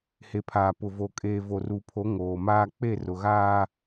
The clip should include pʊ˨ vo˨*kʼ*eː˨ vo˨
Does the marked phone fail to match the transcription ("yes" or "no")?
no